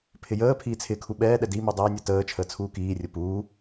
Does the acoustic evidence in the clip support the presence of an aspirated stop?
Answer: yes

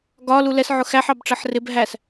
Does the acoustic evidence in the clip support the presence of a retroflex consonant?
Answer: yes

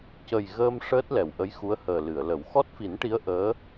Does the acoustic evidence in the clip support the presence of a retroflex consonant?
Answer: yes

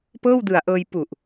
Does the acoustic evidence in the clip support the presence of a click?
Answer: no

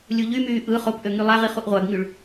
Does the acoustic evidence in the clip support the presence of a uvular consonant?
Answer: yes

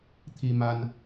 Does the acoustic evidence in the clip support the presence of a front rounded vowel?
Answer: no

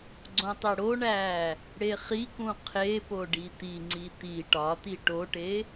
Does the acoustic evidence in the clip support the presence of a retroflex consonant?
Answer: yes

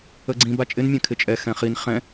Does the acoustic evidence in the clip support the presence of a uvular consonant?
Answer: yes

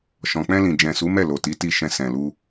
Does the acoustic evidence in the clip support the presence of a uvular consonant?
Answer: no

